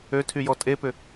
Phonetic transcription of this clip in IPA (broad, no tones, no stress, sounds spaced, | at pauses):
ø tʰ y j ɔ tʼ e p ʏ